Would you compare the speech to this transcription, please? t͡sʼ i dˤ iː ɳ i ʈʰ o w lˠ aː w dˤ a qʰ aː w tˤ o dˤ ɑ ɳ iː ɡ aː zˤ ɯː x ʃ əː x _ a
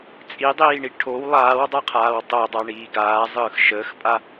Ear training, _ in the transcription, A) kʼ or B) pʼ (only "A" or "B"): B